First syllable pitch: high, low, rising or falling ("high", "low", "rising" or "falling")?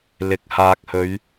low